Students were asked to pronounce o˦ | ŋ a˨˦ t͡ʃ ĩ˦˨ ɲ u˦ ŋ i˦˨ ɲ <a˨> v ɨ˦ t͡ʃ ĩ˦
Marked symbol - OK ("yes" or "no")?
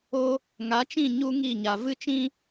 yes